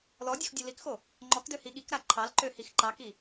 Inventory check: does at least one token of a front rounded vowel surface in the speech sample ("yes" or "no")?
yes